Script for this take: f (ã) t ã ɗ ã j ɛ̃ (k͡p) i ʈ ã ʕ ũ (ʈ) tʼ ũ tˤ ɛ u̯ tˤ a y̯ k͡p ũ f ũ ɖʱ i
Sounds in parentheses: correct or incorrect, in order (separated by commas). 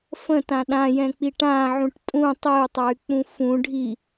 incorrect, correct, correct